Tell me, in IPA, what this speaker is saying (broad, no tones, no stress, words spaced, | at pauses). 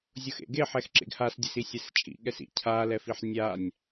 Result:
zʲʊxḛɡeħɛx ǁḛɡhasdʲes isʲɛst͡ʃʼḭ ɠɛsḭ cʰalɛfiħ nʲanʲ